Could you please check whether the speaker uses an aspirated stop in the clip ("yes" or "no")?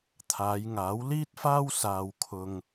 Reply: yes